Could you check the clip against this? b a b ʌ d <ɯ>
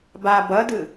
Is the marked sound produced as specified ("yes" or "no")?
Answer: yes